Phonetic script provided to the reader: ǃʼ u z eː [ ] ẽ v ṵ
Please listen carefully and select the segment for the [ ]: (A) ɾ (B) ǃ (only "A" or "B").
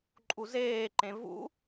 B